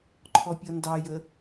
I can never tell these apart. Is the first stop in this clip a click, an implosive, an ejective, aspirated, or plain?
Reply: click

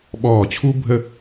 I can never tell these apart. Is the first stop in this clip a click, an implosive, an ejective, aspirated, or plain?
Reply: implosive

